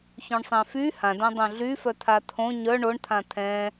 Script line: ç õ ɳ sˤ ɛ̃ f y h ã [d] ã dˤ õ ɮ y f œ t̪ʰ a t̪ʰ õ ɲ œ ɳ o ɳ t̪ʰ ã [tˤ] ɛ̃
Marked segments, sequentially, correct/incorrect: correct, incorrect

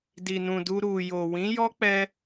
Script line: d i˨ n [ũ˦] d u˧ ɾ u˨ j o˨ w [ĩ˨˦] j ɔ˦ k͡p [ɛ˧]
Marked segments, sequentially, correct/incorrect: incorrect, correct, incorrect

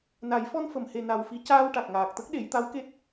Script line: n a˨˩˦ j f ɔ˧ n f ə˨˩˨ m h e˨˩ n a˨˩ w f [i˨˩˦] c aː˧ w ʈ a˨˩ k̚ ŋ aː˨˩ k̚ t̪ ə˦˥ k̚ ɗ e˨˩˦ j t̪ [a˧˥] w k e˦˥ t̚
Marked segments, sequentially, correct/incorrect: correct, correct

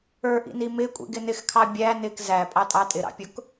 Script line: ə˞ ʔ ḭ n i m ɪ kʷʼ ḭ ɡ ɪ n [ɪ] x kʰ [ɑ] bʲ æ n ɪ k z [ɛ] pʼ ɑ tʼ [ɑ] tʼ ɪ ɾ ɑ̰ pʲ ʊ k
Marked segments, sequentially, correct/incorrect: correct, correct, incorrect, correct

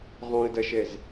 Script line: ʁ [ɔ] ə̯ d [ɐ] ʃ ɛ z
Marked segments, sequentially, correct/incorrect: incorrect, correct

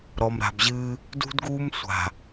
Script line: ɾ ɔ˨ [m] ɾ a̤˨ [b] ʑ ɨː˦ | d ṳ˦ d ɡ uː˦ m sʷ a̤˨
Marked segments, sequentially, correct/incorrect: correct, correct

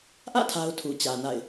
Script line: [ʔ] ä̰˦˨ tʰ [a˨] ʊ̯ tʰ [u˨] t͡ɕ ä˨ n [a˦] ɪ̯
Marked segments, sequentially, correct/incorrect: correct, incorrect, correct, incorrect

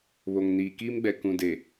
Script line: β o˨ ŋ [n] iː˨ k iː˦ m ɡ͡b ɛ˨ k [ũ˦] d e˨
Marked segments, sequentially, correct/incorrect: correct, incorrect

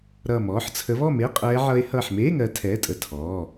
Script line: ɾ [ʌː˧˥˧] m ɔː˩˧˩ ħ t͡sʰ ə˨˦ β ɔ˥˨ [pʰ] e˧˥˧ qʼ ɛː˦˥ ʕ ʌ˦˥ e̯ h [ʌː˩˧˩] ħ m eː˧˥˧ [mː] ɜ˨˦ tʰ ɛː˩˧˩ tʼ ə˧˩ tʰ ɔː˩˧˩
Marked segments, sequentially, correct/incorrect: incorrect, incorrect, incorrect, incorrect

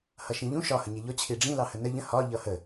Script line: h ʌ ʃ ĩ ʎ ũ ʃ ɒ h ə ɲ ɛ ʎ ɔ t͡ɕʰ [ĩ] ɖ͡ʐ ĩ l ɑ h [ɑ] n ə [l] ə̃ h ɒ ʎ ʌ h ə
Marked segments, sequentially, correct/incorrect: incorrect, incorrect, incorrect

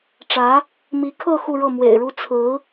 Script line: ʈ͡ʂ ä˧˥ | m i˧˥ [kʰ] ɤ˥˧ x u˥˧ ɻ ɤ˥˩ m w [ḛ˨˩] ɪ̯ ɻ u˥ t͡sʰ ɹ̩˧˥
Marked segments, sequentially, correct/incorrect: correct, correct

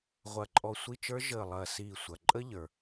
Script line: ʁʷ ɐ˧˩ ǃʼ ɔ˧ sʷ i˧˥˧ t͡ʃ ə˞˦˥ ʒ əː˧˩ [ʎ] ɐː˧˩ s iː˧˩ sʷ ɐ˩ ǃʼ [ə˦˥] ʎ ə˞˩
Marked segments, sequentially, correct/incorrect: incorrect, correct

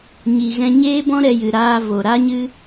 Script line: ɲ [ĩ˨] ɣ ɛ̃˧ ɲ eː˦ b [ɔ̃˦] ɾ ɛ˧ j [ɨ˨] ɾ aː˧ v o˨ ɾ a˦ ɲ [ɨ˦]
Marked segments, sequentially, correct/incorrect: incorrect, correct, correct, correct

